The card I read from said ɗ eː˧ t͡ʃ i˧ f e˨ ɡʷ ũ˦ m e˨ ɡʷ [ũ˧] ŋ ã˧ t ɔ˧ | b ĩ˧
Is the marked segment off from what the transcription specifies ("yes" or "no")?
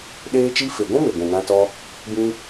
yes